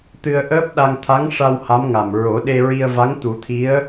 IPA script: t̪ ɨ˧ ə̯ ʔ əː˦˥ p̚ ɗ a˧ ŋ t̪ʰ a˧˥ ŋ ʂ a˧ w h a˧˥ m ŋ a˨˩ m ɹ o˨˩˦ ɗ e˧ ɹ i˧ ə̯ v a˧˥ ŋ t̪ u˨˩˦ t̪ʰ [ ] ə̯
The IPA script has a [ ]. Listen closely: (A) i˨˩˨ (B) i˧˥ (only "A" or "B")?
B